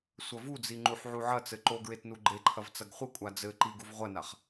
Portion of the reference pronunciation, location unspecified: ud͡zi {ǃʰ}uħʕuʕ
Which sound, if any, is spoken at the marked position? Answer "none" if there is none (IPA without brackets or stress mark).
ŋ͡ǃ